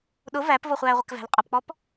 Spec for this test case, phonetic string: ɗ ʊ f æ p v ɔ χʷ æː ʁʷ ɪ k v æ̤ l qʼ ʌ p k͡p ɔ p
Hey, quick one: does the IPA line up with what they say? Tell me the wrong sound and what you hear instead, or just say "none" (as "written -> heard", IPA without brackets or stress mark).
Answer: f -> v